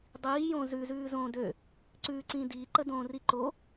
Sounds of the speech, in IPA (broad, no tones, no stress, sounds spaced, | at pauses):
dˤ iː j õː z ʉ z ʉː z õː d ø | ǀ ʉː ǀ ĩː d iː ǃ ə d õː r i ǃ o